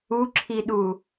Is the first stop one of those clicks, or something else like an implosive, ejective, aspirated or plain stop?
click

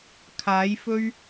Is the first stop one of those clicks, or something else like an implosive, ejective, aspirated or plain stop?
aspirated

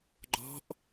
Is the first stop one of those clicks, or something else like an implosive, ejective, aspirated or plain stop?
click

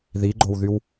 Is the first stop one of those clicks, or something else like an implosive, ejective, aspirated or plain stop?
click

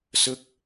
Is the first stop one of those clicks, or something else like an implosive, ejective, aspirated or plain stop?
plain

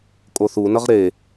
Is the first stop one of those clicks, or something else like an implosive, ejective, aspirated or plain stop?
ejective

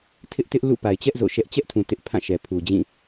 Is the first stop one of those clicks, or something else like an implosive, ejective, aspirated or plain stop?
aspirated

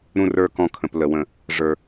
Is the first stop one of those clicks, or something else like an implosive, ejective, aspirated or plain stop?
plain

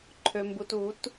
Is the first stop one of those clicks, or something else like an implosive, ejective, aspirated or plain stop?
click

